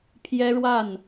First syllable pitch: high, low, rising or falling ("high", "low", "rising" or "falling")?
high